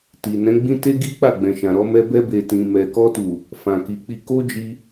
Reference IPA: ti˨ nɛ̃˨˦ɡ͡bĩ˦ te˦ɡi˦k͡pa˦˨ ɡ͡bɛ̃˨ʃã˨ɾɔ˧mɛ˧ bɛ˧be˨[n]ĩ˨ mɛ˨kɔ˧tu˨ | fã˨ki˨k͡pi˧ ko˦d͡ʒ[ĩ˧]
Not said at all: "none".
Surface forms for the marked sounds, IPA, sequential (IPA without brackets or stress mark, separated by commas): t, i˧